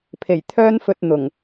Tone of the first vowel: low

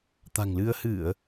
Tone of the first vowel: low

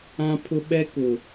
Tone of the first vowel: high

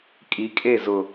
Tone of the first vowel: rising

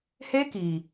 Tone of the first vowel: high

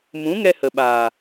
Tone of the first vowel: rising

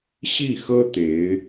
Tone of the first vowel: falling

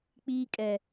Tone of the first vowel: high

